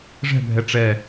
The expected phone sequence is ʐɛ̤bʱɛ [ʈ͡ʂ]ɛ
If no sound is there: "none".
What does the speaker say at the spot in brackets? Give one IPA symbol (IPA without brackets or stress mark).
ʈ͡ʂ